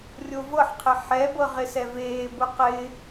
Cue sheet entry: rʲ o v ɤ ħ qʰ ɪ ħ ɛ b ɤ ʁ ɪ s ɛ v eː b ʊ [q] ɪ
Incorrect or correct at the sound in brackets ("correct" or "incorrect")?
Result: correct